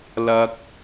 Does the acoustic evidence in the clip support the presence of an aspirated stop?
no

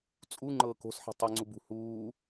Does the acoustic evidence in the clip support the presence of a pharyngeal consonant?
yes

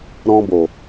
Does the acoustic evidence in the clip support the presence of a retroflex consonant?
no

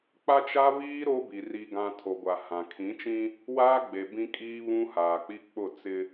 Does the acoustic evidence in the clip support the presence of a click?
no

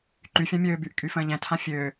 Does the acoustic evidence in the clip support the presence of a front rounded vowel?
yes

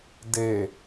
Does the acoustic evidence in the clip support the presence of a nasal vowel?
no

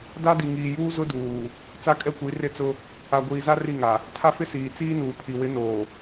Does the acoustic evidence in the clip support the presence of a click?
no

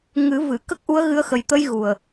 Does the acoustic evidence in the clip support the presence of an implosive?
no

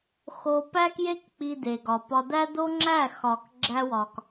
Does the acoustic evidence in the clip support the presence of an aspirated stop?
no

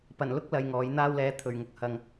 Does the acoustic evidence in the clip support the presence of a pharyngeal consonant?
no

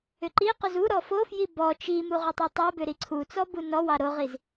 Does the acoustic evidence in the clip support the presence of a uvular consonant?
yes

